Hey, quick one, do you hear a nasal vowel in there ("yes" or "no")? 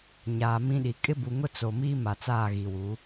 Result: yes